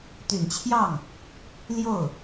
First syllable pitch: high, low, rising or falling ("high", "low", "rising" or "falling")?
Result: low